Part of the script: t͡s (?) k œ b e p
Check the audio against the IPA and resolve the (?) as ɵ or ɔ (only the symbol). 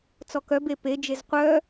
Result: ɔ